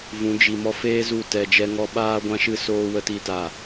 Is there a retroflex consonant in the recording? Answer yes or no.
no